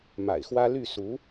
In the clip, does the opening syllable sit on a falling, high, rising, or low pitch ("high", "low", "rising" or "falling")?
low